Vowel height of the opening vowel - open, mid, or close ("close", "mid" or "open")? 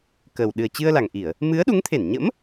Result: mid